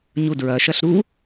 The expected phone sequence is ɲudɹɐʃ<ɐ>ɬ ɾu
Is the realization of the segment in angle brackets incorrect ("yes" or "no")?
no